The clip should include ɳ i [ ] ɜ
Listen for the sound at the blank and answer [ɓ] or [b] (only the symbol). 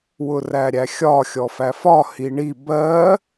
b